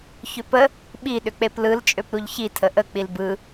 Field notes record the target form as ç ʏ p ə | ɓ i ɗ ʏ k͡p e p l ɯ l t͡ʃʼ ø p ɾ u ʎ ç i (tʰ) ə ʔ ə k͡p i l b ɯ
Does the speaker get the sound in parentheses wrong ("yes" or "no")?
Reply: no